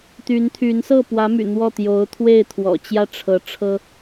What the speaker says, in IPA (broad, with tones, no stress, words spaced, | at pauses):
t̪y˧˥nt̪ʰy˧˥n sɤ˥˩pwä˧˥my̰˨˩ n̪wɔ˥˩ t̪jo˧˥ʊ̯t̪ʰwe˥˩ɪ̯t̪ʰwɔ̰˨˩ t͡ɕjä˥˩ʈ͡ʂʰɤ˧˥ ʈ͡ʂʰɤ˥